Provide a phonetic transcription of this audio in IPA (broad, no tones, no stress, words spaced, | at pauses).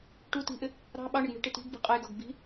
ʈu ti̤ʔɪ | ɾɑ̤ ɓɑɳɪɡ ɳi̤ʈɪ ti̤ɡbi̤ qʼəjɡɒɡ bi̤